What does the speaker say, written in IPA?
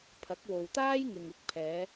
pʰ ɐ˨˥ k̚ w o˨ w t̪ aː˥ j ŋ ɪ˨ ŋ ɪ˧ k̚ pʰ ɛː˨˧

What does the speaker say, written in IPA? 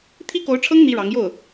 t̪ʰ i˥ k o˧˥ ʊ̯ ʈ͡ʂʰ ɤ˥ ŋ n̪ i˥ ɻ ɑ˧˥ ŋ j o˥˩ ʊ̯

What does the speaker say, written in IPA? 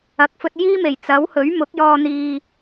ɐ˨ k̚ f ɵ˧ t̚ j iː˥ m e˨˩ j t͡s ɐ˨˥ w h ɵ˨˥ ɥ m ʊ˨˥ k̚ j ɔː˧ n̪ iː˧

